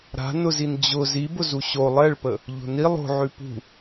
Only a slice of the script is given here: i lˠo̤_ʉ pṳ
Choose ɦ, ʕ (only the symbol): ʕ